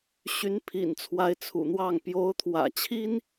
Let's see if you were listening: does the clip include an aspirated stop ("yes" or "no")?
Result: yes